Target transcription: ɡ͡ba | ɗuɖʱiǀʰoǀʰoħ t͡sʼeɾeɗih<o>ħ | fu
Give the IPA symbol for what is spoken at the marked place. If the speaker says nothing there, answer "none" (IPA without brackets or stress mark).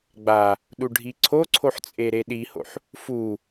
o̰